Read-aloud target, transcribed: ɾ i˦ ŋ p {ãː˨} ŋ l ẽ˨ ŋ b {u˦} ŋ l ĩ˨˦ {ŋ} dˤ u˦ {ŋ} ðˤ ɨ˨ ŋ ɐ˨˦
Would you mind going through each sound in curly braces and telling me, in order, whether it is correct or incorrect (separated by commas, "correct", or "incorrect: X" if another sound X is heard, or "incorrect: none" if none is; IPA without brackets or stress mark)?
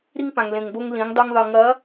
incorrect: ã˨, incorrect: o˦, correct, correct